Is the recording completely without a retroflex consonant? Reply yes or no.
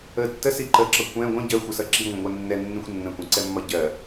yes